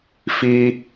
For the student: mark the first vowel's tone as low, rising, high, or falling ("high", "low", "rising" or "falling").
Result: high